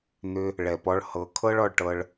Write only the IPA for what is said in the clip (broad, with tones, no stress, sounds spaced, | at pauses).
n̪ ʏ˧ | ɭ ɛ˨ p ɔ˧ ɭ h ɤ˨ kʰ ɤ˦ ɭ ɔ˨ ɭ ʈ ɤ˧ ɭ